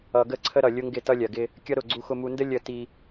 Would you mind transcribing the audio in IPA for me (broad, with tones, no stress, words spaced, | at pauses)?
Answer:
ʌ˨ɡə˦˨ ǀʰə˦ɾʌ˨ lʲʊ˦ŋɡɪ˦˨ tʌ˦lʲɜ˨ɡɪ˦ | kʲʌ˦ɾʊ˦˨ ɡ͡ǀu˦xʊ˦mu˦ ndə˦ lʲə˦˨ ti˦